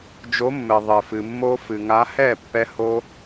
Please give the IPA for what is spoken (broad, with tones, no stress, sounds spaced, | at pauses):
d͡ʒ o˨˥ mː ɘ˩ ðˤ ɘ˩ f ɨ˩ mː o˦˥ f ɨ˩ ŋ a˨˥ h ɛ˥˩ pː ɛ˦˥ h o˦˥